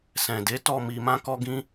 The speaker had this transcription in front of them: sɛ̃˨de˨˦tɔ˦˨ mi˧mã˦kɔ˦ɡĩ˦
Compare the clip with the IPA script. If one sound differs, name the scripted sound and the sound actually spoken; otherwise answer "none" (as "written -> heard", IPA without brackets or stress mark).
none